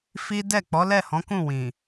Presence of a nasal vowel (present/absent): present